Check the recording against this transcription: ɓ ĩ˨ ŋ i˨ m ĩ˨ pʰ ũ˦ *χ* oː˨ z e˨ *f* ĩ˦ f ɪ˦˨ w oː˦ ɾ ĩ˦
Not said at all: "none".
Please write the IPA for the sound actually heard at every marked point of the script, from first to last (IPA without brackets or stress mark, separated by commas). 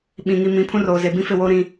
r, b